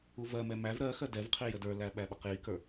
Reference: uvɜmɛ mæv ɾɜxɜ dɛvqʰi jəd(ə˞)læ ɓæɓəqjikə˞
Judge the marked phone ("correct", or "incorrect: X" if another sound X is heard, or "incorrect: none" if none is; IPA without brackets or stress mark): correct